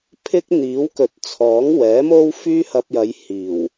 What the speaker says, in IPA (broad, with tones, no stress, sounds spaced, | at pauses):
pʰ ɪ˥ k̚ n̪ iː˨˥ w k ɵ˨˥ t̚ t͡sʰ ɔː˨˥ ŋ w ɛː˨˥ m o˥ w f yː˥ h ɐ˧ p̚ j ɐ˨˧ j h iː˨˩ w